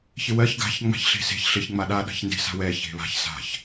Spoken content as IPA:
ç ɪ w ɜ ç ɡ a̤ ç ŋ͡m a̤ ç ɬ e̤ s e̤ ç ɬ ɪ ç ŋ͡m a ɗ a ɗ a̤ ç n d e̤ s a̤ w ɛ ç e̤ β a̤ ç s a̤ ç

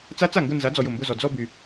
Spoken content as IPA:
t͡s a˦˥ t͡s a˥˩ ŋ ɡ ʊ˥˧ n z a˨˥ d͡z ɔ˨ j ʊ˥˩ m b ʊ˥˧ z ɔ˨ d͡z ɔ˥˧ b y˨

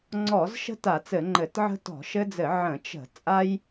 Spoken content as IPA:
ŋ͡ǀ ɔ˧˩˧ z ʃ ə̤˦ t a˧˩˧ t͡s ɘ˧˩˧ ŋ͡ǃ ɘ˧˩˧ t ʕ ə̤˦ t ɔ̤˧˩˧ ʃ ɘ˦ d͡z ɘ˧˩˧ ʕ ə̃˧˩˧ t͡ʃ ə̤˧˩˧ t͡sʼ a˦ j

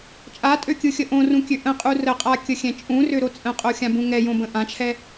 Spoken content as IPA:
t͡ʃʼ a tʼ ø kʲ ɯ xʲ ə ʔ õ r ũ kʲ ø ʔ ə̃ qʼ u r ə qʼ a kʲ ə xʲ ɛ̃ t͡ʃʼ ũ r ø ɾ o t͡sʼ ə̃ qʼ o xʲ ã b ũ ŋ ɛ j õ b ə̃ ʔ ã t͡ʃʰ ɛ

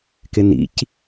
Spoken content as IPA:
k ɪ n ḭ c

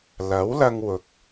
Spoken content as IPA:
l ɐ˨˥ w l ɐ˧ ŋ w ʊ˨ k̚

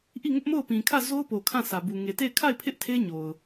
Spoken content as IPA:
ʔ i˦˨ ŋ ʊ˦ ʔ m o˦˨ ʊ̯ p ĩ˨ kʰ ä˦˨ z o˦ ʊ̯ p o˨ kʰ ã˦˨ s ä˨ b u˨ ŋ e˨ t e˦˨ ɪ̯ kʰ a˦˨ ɪ̯ pʰ ɪ˦ ʔ tʰ e˦ ɲ o˨ ʊ̯

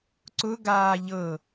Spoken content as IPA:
ǀ ʊ ɡ aː ʎ ɤ

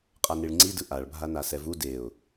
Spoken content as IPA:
qʼ a n i ɭ ŋ͡ǀ i d ɯ ʔ a ɭ bʱ a n a s ɛ v u d e ʊ̯

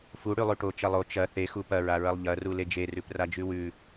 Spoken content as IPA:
f u ɽ ʉ lˠ ʉ ʈ o t͡ʃ ɐ lˠ o t͡ʃ ɐ θ e x u p ɐ ɹ a ɹ ɐ lˠ ʎ ɐ r u l e d͡ʒ e r ʉ p r a d͡ʒ ʉ w ʉ

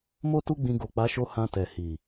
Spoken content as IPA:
m o˦ t u˦ ɡ͡b ĩ˧ ɡ o˨ k͡p a˨˦ ʃ o˧ h ã˧ t ɛ˨ h i˨

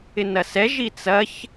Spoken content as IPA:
ɪ n ɐ s ɛ ʒ i t͡s ɐ ç

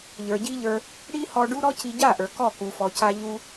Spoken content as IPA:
ʎ ə˞˨ ɟ i˦ ʎ ə˞˧ | ɽ i˦ h ɔ˧ ɖ u˦ ɾ ɔ˦ c i˧ ɟ a˦˨ ʔ ə˞˨ k ɔ˦˨ k u˨ f ɔ˨ c a˧ ʎ u˧

